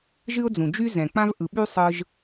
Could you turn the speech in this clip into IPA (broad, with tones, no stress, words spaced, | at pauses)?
ʒɨ˥ʊ̯d͡zũ˩d͡ʒy˥ zɛ̃˩k͡pã˥v ʔɯ˩ɓy˥ sˤɯ˥ʒ